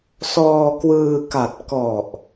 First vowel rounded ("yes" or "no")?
yes